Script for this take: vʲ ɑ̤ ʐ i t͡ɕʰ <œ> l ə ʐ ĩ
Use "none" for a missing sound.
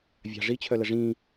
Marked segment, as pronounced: œ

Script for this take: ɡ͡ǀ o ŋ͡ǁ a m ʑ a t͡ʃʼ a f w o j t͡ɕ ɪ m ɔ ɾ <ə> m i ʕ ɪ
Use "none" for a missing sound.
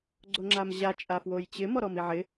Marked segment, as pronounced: ɔ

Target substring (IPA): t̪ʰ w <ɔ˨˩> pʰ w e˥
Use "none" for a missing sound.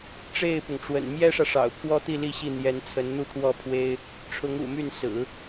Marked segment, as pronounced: ɔ˥˩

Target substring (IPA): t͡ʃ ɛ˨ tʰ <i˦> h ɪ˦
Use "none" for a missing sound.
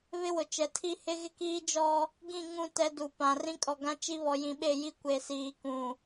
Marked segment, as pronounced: i˦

